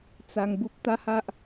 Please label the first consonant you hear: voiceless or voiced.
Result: voiceless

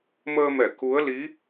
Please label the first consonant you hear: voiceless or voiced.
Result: voiced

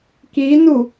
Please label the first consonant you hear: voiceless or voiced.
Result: voiceless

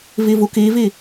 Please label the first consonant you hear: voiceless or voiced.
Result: voiced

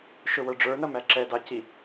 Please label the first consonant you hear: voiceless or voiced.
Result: voiceless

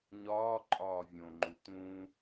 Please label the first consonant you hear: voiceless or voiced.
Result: voiced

